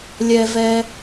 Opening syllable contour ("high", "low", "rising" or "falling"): low